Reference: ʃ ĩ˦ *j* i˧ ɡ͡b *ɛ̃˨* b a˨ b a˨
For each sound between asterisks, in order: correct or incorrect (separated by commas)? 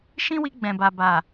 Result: incorrect, correct